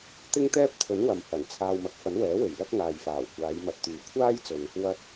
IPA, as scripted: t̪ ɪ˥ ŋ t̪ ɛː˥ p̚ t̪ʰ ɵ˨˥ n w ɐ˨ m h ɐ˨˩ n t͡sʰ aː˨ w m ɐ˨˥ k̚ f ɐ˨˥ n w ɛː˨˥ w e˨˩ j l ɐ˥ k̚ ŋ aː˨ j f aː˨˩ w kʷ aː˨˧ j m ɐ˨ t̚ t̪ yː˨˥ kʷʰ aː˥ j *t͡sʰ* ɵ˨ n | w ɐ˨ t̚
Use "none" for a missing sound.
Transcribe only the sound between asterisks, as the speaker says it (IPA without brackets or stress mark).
t͡s